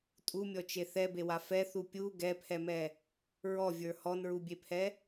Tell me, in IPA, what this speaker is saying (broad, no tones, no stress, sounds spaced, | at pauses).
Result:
tʼ u mʲ ɔ t͡ʃ e θ ɛ b e w a f ɛ θ u pʲ u ɡ ɛ pʰ ɛ m ɛ | ɹ ɔ vʲ ə˞ h ɔ n ɹ u bʲ e pʰ ɛ